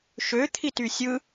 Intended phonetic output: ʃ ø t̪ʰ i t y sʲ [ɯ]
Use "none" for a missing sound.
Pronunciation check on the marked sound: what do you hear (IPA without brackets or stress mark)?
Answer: ɯ